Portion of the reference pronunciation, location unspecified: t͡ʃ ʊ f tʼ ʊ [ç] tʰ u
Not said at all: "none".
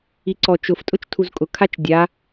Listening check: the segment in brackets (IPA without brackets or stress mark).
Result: t͡ʃ